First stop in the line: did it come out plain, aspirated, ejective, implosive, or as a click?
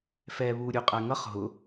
ejective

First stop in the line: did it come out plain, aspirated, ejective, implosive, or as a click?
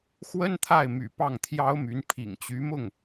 aspirated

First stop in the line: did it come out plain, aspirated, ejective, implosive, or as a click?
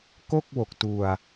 plain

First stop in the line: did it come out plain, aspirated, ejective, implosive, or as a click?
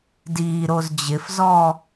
plain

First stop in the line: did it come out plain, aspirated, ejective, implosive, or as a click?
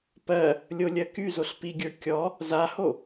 plain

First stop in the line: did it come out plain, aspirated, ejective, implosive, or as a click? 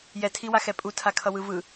aspirated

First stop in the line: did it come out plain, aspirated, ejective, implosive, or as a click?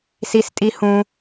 ejective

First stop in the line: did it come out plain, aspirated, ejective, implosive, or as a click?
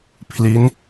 aspirated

